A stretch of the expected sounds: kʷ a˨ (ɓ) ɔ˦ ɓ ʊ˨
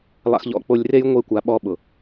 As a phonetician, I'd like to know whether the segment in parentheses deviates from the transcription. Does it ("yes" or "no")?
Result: no